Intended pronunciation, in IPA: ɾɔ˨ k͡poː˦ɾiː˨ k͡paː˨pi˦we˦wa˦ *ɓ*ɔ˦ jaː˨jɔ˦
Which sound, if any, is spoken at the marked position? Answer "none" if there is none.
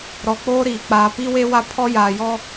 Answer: pʰ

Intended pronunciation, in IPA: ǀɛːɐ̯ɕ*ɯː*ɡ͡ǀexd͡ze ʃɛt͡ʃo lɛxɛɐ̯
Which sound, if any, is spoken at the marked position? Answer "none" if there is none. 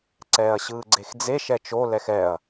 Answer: ɯː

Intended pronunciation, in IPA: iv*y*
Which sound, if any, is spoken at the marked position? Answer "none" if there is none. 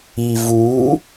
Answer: u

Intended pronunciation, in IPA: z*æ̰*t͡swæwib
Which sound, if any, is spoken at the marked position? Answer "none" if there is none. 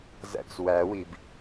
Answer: æ̰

